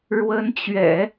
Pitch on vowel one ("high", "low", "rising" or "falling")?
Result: rising